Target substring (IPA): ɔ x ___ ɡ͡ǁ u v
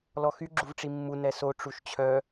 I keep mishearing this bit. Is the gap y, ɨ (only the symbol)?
y